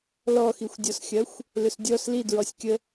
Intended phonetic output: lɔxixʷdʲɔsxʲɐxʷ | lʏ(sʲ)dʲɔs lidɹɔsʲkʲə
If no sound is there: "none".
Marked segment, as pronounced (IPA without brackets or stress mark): s